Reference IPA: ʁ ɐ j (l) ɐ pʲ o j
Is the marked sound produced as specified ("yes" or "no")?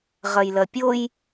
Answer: yes